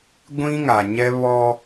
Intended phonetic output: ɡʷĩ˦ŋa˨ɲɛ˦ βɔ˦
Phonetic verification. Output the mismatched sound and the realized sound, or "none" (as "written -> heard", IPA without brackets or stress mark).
none